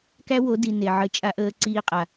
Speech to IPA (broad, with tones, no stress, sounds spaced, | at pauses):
k æ˦ w o˨˦ d i˨ n e˨ ʕ ə˧ t͡ʃʼ a˦ ʔ əː˦ ǀ iː˦ qʼ a˨